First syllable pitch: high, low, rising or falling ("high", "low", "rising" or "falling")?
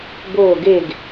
falling